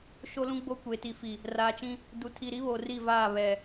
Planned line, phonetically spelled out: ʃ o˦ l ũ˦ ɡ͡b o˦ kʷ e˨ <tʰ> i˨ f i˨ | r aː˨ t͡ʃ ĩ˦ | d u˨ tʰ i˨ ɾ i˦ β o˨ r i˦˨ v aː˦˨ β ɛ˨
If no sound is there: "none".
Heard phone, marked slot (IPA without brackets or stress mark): t